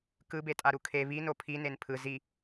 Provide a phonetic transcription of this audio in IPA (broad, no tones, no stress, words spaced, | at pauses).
kɯbetʼaɾu kʰe βino pʰinen pʰɯ zi